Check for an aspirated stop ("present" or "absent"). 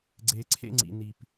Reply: present